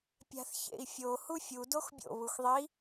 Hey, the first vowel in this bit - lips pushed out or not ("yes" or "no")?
no